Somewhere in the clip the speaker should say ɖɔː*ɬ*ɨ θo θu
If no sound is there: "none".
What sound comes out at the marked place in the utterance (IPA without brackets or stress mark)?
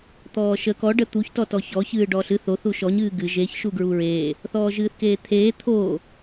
ɬ